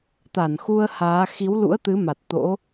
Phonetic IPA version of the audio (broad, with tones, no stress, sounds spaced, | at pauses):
t̪ a˧˩ n x u˧ ə̯ h aː˨˦ x i˨˦ w l ṵ˧˥ ə̯ t̪ ɨ˨˦ m a˨˩ t̚ t̪ o̰˧˥